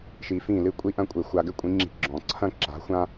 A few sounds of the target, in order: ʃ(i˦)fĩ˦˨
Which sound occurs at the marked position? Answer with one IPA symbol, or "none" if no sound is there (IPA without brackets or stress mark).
i˧